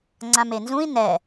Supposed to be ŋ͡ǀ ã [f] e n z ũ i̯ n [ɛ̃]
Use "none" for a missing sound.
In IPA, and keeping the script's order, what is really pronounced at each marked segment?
m, ɛ

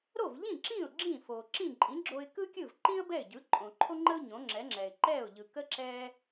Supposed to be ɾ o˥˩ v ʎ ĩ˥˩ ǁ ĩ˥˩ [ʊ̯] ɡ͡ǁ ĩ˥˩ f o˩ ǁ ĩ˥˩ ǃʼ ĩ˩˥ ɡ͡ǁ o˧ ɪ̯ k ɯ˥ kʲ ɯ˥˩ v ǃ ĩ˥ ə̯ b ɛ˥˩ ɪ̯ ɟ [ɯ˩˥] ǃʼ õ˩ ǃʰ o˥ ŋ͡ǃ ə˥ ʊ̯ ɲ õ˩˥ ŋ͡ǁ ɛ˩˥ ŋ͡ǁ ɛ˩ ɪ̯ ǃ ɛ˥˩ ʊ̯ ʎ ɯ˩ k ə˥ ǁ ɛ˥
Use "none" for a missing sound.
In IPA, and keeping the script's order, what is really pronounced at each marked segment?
ʊ̯, ɯ˩˥

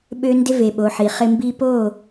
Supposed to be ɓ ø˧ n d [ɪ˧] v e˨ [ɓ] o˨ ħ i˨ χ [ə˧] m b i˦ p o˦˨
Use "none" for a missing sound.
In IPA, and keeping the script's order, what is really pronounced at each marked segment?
ɪ˧, ɓ, ɪ˧

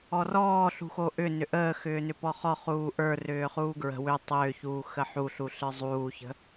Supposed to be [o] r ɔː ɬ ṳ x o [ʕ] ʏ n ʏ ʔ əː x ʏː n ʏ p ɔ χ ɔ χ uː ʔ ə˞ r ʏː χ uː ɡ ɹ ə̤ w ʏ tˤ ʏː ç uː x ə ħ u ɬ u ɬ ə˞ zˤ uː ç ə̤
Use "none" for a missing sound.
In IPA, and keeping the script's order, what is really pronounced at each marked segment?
ɔ, ʔ

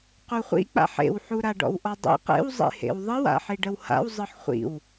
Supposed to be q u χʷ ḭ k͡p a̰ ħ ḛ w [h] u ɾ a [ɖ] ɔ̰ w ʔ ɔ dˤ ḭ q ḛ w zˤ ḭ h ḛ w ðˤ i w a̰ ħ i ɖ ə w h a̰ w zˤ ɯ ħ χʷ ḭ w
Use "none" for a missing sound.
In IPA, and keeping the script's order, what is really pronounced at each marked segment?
ħ, ɖ

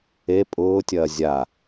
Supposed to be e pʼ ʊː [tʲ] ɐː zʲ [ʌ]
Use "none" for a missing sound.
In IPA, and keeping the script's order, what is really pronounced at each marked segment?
tʲ, a

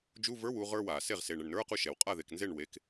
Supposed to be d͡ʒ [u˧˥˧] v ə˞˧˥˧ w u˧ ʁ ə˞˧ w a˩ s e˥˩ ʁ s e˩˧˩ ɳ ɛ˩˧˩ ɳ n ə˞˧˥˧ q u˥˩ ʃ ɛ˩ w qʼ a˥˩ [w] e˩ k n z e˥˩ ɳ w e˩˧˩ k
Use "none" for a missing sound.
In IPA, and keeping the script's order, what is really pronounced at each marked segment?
u˧˥˧, ð

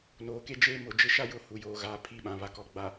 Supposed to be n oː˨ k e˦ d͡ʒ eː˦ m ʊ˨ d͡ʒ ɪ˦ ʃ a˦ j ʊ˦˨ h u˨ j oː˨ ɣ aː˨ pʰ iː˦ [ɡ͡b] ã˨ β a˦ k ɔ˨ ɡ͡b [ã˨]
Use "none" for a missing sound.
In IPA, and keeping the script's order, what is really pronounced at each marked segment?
ɓ, a˨

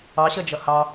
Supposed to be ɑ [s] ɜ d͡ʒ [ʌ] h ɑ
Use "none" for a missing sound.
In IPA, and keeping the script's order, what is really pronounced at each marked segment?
ɕ, ʌ

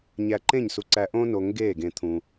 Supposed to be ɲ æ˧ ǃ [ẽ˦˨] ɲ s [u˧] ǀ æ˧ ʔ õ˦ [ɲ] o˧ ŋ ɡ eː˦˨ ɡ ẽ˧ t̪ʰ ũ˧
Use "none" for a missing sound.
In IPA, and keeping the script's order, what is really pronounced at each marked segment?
ẽ˦˨, u˧, n

